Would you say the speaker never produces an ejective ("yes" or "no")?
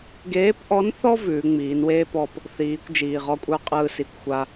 no